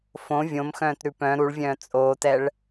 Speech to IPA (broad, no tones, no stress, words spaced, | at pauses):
fõ vʲõmxœ̃ːtɾʉ pœ̃ ɾuɭvʲœ̃ː t͡sʼoːtɛɭ